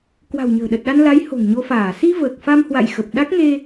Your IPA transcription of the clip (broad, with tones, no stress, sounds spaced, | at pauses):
k w a̤˨˩ w ɲ ə̤ː˨˩ ɗ ə˨˩ t̚ ɗ a˧ n l a˨˦ j h o̤˨˩ ŋ ɲ o˧ f aː˧˩ s i˧ v əː˨˩ k̚ f a˧ m h w a̰˧˨ j x ə˨˩ p̚ ɗ a˦˥ k̚ ŋ e˧